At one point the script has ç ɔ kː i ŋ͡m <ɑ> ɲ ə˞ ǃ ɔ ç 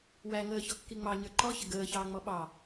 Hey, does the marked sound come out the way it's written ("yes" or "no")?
yes